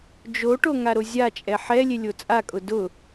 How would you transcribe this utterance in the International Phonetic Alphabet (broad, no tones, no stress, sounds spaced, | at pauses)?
d͡ʒ o ʈ o ŋ a ɾ o zʲ a t͡ʃʼ ɛ ħ ɛ lʲ e lʲ o t͡sʼ a kʼ ʊ d ʊ